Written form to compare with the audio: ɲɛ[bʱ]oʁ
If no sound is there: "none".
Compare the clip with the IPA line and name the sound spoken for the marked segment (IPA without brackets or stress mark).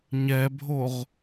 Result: bʱ